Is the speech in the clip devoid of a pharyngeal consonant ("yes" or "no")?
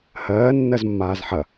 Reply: no